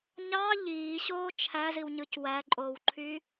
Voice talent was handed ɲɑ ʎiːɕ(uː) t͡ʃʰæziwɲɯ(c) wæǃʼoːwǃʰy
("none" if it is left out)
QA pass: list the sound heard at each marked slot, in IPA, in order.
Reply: oː, c

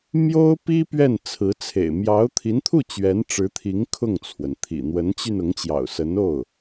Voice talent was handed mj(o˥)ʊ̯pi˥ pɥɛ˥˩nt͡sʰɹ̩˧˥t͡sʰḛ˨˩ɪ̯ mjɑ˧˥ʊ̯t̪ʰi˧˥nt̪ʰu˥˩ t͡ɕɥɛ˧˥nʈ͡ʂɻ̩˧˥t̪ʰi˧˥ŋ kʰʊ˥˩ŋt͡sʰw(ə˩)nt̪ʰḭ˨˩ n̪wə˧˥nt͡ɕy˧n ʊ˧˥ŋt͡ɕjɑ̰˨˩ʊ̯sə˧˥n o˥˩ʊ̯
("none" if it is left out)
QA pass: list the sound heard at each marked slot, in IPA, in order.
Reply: o˥, ə˩

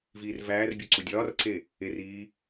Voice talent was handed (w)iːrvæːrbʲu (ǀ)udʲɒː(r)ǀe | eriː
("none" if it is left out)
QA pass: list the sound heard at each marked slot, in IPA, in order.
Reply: v, ǀ, r

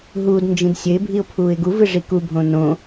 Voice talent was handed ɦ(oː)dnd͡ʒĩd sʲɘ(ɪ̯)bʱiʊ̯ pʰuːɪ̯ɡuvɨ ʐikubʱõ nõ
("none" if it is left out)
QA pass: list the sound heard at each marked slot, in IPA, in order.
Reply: uː, ɪ̯

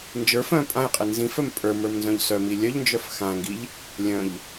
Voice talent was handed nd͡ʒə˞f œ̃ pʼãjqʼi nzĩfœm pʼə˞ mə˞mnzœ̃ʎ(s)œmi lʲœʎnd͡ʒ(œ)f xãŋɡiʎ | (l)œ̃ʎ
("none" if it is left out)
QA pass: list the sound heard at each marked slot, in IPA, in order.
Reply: s, œ, lʲ

